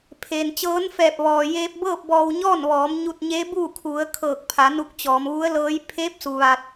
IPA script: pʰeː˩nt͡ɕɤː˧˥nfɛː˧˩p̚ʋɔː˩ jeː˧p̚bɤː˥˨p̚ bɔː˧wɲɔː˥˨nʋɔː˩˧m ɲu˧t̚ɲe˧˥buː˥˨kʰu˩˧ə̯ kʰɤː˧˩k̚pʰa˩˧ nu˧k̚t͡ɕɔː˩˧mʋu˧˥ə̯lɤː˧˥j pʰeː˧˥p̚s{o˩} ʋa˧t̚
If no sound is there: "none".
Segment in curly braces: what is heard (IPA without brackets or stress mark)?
u˩